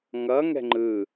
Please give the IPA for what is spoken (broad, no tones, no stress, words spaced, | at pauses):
ŋʌŋɛ̤ ŋ͡ǃɯ